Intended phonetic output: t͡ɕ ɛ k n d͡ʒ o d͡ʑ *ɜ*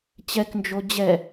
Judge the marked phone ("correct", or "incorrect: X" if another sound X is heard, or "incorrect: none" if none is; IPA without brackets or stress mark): incorrect: ɛ